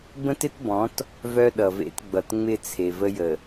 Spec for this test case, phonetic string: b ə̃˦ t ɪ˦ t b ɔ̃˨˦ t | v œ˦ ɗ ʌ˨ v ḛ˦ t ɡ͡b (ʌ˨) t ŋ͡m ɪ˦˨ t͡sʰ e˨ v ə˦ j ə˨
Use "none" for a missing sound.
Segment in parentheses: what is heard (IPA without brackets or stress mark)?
ʌ˨